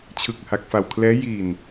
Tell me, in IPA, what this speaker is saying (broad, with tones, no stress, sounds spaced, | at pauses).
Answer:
t͡ɕʰ ɯ˨˩ k̚ h a˨˩ k̚ f a˨˩ w kʰ l ɛː˦˥ j i˨˩ n